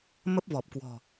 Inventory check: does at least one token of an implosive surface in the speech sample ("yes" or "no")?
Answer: no